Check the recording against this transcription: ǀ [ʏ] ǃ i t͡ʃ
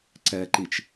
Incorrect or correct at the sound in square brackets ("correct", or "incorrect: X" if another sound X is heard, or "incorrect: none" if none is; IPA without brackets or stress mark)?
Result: incorrect: ɛ